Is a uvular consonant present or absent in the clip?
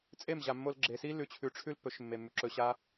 absent